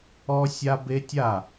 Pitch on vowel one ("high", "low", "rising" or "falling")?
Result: high